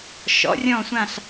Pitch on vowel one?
rising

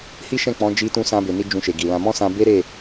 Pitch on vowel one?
high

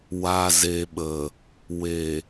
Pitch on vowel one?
low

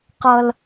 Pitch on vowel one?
high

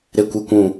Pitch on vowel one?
high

